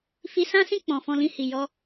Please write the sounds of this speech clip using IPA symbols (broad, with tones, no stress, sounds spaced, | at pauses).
f i˧ s ã˦ s ĩ˦˨ k͡p ɔ̃˨ f ɔ̃˧ l ĩ˧ h i˨ j ɔ˧